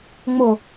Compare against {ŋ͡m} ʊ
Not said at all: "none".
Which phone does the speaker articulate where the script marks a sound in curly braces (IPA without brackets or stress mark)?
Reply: ŋ͡m